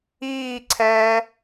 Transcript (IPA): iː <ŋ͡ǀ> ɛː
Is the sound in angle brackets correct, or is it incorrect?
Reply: incorrect